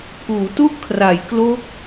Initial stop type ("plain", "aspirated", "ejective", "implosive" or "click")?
aspirated